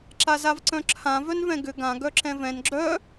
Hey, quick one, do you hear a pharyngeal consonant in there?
no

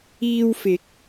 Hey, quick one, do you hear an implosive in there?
no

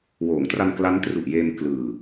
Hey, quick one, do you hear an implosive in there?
no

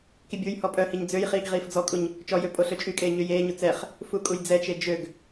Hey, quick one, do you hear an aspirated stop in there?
no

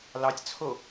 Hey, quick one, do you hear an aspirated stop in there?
yes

